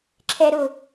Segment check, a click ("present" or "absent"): present